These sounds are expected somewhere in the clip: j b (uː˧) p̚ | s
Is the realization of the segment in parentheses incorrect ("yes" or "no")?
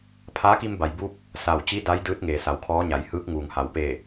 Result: no